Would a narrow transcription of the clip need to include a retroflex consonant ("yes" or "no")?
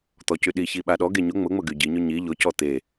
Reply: no